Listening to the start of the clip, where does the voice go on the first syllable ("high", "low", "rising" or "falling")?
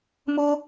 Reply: high